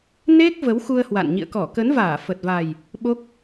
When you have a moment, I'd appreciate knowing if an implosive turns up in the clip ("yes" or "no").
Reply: yes